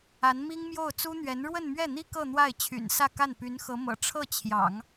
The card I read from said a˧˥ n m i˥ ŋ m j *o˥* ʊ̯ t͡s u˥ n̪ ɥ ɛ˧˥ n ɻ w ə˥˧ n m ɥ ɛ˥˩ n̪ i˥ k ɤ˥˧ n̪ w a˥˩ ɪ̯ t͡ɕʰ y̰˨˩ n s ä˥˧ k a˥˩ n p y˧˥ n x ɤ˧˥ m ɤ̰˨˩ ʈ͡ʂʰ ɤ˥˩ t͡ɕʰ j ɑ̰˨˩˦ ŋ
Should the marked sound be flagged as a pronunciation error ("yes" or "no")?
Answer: yes